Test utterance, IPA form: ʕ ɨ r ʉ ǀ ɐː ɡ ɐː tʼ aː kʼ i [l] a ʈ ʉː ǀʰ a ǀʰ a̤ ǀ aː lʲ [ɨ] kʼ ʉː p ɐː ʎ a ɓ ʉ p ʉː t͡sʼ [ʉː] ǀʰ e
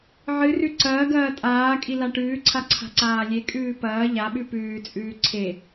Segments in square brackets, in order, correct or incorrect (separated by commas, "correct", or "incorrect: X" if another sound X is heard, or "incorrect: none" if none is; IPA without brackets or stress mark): correct, incorrect: e, correct